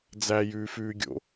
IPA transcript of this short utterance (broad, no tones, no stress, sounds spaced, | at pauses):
d͡z æ j ʉː f ʉː ɡʲ o̰